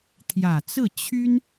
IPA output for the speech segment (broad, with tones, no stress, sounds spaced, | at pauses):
t̪ʰ j ä˨˩ t͡s ɹ̩˥˩ t͡ɕʰ y˥ n